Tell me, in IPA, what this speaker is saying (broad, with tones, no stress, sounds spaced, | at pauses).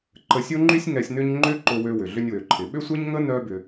ǃ ə˧ sʲ o˦ ŋ͡ǃ y˦ sʲ ŋ ɛ˧ sʲ n ʏ˦ ɲ ŋ͡ǃ ʏ˦ ǃ ʊ˧ w ø˧ w ʏ˨ ɮ ʏ˧ nʲ w ø˨ ǃʰ ɪ˨ ɓ ʏ˦ sʷ ɛ˦ ɲ ŋ ə˦ n œ˦ b ʏ˧